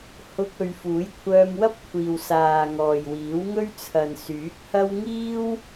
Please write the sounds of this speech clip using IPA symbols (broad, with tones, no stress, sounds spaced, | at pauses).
h ʊ˧ k̚ ɵ˧ ɥ f uː˨˥ j kʷʰ œː˧ m w ɐ˥ p̚ kʷʰ iː˨ w s aː˨ ŋ ɔː˨ j w iː˨˥ w ŋ ɵ˥ ɥ t͡sʰ ɐ˨ n s yː˨˥ k̚ h ɐ˥ w ŋ iː˥ w